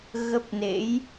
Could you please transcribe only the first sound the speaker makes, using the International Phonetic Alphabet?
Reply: ɣ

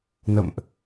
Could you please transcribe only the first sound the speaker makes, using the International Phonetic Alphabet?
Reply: n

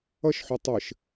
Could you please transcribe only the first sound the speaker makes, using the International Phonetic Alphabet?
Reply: ʌ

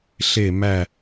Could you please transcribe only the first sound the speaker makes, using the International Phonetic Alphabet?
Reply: ɬ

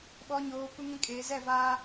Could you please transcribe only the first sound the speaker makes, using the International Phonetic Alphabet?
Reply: ɓ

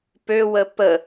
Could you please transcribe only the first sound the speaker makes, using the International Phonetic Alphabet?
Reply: p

